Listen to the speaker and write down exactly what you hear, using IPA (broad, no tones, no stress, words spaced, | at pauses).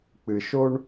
k͡pɨʃoɳ